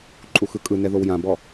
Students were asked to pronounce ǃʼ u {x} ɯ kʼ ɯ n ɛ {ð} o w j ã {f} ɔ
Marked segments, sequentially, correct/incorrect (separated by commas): correct, correct, incorrect